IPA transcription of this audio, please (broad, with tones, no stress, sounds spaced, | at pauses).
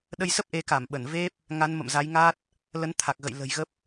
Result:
ɗ ə˧ j s ə˦˥ p̚ ʔ e˨˦ k a˧˩ m ɓ ə˧˩ n v e˦˥ p̚ | ŋ a˨˦ n m ə̰˧˨ m z a˨˦ j ŋ a˦˥ t̚ | l ə˨˦ n t̪ʰ a˨˩ k̚ ɣ ə̰˧˨ j l ə̤˨˩ j ɣ ə˦˥ p̚